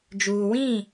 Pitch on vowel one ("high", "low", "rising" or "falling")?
low